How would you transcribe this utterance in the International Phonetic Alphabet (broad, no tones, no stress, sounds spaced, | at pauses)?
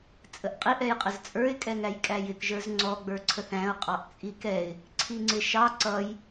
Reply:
t͡sʼ ə ʔ qʼ i ʔ ɛ j qʼ ə z t͡sʼ ə˞ ɪ̯ kʼ ɛ ŋ æ j kʼ æ j ɪ k ʒ ə˞ z ŋ͡ǀ ɔ ɡ͡b ə˞ ǀʰ ə θ æ̃ ʊ̯ qʼ ɑ ʔ t͡sʼ i k ɛ ɪ̯ | ǀʰ i ŋ͡ǀ ɪ ʃ ɑ ǀ ʌ j